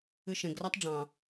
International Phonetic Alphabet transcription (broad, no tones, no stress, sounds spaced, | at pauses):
ɨ ʃ ẽ ɡ r a tˤ ɖ͡ʐ ɑ̃